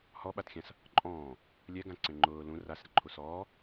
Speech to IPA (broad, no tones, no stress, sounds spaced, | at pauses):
h ɔ ɓ a t xʲ ã s | ǃʼ ɔ̃ː | lʲ ɛ ɡ ã ǀ ẽ ŋ͡ǃ ʊː l ũ r a s ɾ ɪ ǃʰ u s ɔː